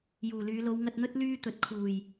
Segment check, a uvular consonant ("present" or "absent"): absent